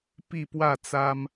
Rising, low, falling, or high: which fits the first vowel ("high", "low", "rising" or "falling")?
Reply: falling